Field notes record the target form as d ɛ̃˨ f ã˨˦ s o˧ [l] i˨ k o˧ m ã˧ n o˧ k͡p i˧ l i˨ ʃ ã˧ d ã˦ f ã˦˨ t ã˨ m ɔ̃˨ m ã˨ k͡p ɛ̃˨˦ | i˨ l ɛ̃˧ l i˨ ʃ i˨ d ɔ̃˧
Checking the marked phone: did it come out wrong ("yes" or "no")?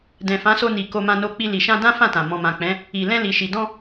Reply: yes